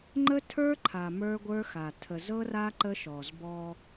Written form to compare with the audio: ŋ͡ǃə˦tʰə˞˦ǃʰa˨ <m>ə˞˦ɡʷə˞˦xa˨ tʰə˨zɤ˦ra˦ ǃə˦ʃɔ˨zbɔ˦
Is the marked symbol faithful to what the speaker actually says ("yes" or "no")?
yes